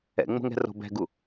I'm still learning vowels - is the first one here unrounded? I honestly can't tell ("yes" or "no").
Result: yes